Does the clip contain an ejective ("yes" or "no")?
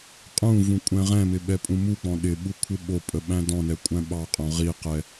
yes